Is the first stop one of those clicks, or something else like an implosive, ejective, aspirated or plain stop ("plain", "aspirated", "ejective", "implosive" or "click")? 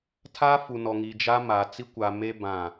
aspirated